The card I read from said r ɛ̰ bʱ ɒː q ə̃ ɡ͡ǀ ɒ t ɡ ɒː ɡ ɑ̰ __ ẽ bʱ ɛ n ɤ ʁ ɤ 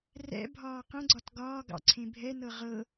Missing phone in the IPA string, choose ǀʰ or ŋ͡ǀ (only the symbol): ǀʰ